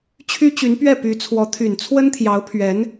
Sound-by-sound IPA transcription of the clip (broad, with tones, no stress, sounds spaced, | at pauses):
t͡ɕʰ y˥ t͡ɕ y˧˥ n p ɥ ɛ˥˩ p y˧˥ t͡sʰ w ɔ˧˥ t̪ʰ y˨˩ n t͡sʰ w ə˥ n t̪ʰ j ɑ˧˥ ʊ̯ pʰ ɥ ɛ˧˥ n